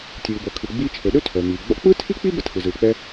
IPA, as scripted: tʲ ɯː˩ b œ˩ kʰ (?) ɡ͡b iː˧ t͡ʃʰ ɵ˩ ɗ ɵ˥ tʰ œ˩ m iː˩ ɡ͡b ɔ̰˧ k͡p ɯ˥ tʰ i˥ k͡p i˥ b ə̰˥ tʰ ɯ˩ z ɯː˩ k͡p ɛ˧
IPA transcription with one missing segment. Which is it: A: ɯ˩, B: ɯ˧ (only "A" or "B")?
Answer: A